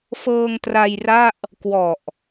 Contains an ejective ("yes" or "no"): no